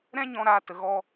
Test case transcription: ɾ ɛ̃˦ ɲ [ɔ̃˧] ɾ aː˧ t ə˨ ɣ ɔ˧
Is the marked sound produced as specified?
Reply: yes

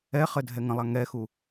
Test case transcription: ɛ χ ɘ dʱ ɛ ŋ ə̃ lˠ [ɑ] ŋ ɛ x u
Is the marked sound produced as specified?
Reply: no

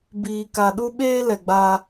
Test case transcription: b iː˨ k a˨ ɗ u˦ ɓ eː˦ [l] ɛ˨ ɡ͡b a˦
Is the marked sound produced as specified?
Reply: yes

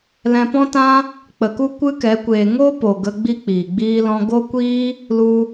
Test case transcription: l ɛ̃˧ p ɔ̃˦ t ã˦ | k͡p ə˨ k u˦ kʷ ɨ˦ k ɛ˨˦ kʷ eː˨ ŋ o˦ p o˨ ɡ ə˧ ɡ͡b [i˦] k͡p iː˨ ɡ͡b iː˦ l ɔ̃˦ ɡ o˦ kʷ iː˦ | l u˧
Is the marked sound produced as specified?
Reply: yes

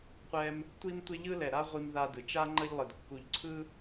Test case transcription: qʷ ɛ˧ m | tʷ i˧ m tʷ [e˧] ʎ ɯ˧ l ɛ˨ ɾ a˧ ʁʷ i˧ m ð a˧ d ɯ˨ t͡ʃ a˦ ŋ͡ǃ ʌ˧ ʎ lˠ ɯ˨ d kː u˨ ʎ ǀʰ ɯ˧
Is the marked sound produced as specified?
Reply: yes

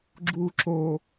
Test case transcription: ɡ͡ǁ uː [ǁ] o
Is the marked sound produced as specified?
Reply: yes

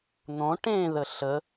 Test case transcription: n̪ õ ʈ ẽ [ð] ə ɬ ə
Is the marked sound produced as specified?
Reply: yes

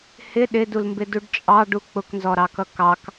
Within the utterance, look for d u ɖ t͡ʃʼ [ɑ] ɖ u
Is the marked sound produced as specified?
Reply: yes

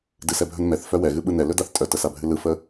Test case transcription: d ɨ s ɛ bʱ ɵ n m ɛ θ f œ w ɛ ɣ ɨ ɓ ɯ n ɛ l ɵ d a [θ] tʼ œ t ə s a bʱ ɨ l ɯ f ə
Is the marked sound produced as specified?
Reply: yes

